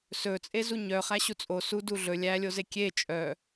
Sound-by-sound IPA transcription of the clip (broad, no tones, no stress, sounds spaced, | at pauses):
s ɵ t͡sʼ e z u ɲ œ χ æ ɕ u t͡sʼ o s u d u ɮ ɵ lʲ æ lʲ o z e kʲ e t͡ʃʼ œ